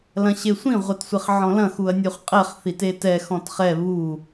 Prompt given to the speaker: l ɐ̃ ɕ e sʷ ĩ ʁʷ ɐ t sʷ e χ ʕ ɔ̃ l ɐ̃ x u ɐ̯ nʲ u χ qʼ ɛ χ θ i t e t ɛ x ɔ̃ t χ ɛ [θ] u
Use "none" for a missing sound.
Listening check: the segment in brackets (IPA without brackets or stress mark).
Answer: β